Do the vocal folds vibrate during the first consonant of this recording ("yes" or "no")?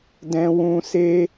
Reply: yes